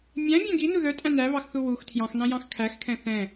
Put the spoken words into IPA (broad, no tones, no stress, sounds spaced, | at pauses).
mʲ æ̃ bʲ æ̃ ɡ i n u ð œ tʼ æ̃ n æ β ɑ x θ u w u x tʰ j ɑ̃ x n ɑ̃ j ɑ̃ x kʰ æ x kʰ ɛ̃ θ ɛ̃